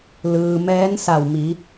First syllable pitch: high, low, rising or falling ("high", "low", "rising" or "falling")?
low